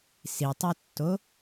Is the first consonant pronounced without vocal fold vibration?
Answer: yes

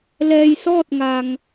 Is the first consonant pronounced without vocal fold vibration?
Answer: no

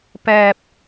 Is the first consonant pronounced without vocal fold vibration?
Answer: yes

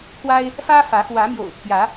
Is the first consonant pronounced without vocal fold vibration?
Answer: yes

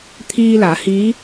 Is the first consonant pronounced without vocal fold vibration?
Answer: yes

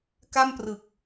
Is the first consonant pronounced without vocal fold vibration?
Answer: yes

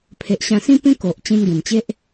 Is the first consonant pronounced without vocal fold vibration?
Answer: yes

